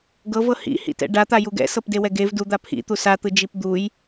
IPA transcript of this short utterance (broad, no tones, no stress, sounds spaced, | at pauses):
ɡ ɤ v ɤ h ḭ h ḭ t ɛ̰ ɖ a t̪ a j u ɡ ɛ̰ s ɤ p d e w ɛ ɡ e v d u d̪ a pʰ ḭ t̪ u s a t̪ ɯ d͡ʒ i p d̪ u j